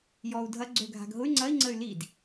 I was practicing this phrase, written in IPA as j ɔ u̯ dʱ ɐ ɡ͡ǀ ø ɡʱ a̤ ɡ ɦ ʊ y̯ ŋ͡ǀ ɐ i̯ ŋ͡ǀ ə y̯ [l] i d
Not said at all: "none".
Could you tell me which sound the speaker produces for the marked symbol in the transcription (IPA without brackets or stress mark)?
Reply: l